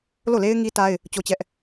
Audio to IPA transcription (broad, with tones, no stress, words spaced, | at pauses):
lo˦˨le˦ɪ̯ ŋi˦ta˦ɪ̯ | t͡ɕo˦t͡ɕɛ˦ʔ